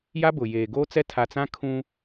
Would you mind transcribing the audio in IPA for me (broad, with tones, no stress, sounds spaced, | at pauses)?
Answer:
j a˦ b ʊ˨ j eː˨ ɡ oː˦ t͡s ɛ˦ tʰ a˨ t͡s ã˦ kʰ ũ˦